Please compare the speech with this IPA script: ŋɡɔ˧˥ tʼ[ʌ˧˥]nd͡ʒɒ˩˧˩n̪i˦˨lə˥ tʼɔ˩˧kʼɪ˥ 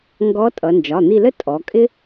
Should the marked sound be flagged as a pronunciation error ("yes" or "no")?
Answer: yes